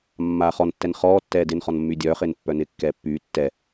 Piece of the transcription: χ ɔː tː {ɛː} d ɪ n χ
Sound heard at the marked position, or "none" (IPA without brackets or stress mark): ɛː